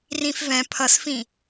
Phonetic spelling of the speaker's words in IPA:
r ĩ f v ɛ̃ pʰ ʌ s f ĩ

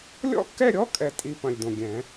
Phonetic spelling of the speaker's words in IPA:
lʲ ɔ̰˥˧ kː ɛ˥˧ ɾʲ ɔ˧˥˧ kʼ ɛ˥˧ tʼ i˥˧ p ɐ̃˨˩ lʲ d õ˨˩ ɡʲ ɛ̃˨˩˦

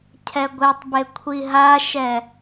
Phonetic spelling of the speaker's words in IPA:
cʰ ɛ ɡʷ e tˤ b e kʷʰ i ɦ a ʃ ɛ

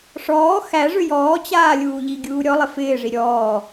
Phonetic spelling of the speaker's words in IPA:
ʂ ɔː x æ ʐ ʏ j ɔː t͡ɕ aː lʲ uː ʎ i ɡʲ uː ɾʲ ɔ lˠ ɪ f ɪː ʐ i ɾʲ ɔː

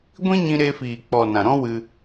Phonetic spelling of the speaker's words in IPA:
ɡʷ ĩ˦ ɲ ĩ˧ ɾ e˧ f iː˨ k͡p ɔ˨ n ã˨ ɾ ɔ̃˦ w ɨ˧

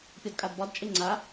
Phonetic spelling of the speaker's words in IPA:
pʲ ɒ d kʼ a d b ɒ d t͡ʃʼ e ŋ͡ǀ a

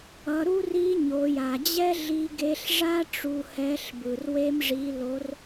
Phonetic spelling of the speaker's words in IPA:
ʌ˩˧ ɾ u˥ r i˧˥ ɲ o˩˧ j a˩ d͡ʑ ɛ˥ ɮ i˧ ɡ e˧ ɬ ʐ a˥ ʈ͡ʂ u˧ h ɛ˧˥ ɬ b ɯ˩ r w e˧ m ʐ i˩˧ l o˩˧ r

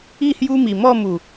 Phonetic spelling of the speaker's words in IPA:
i˥˧ h j u˦ m i˨˩ m ɔ˥˧ m u˨˩

